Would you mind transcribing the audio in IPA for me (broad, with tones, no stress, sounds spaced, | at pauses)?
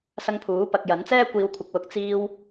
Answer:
s ɐ˧ ŋ pʰ uː˨˥ p ɐ˨ k̚ j ɐ˨˥ n t͡s ɛː˥ kʷ iː˨ w kʷʰ ɪ˨ k̚ w ʊ˨˥ k̚ t͡s iː˧ w